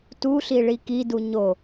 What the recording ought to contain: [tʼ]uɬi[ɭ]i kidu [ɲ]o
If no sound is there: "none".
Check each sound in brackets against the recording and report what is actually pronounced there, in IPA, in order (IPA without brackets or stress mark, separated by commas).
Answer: t, ɭ, ɲ